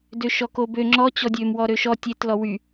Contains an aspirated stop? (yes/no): no